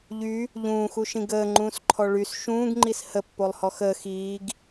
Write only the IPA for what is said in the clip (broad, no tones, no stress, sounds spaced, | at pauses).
ʎ y | ʎ ũː x u ʃ ĩ ɡ əː ŋ͡ǃ ũː s ǃʰ ɔ ɭ y s ʃ ũː ɡ ŋ͡ǃ i s h ə pː o lˠ h ɔ x əː x iː ɡ